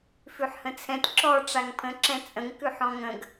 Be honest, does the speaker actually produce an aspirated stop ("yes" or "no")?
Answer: yes